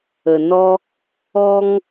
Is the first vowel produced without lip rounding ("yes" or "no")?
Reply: yes